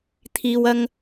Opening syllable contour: low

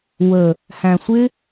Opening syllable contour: low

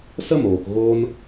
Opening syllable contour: high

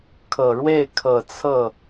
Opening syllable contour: low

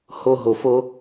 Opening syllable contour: high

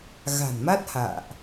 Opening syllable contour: low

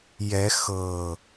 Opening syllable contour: rising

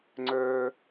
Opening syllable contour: high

